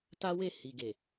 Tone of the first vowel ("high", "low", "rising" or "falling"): high